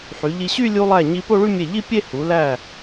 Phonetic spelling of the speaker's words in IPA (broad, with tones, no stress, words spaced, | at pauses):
ħy˩˧ʎi˧ɕy˥˧ lʲu˧lˠæ˧˩ɲi˧ po˥˧ɭy˥˧ mʲe˧˩ʎi˥˧pʲe˥˧ hu˩˧læ˧˩